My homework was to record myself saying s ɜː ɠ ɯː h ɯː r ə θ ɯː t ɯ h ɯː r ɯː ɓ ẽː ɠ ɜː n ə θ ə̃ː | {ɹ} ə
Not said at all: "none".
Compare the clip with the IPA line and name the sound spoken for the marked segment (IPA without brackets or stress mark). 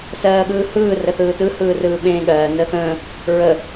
ɹ